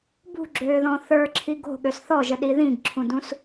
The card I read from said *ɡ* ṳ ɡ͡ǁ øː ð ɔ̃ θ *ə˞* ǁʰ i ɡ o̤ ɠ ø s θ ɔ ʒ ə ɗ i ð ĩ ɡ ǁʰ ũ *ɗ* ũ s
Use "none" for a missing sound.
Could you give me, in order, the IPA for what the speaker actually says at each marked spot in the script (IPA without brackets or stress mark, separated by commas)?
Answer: b, ə˞, d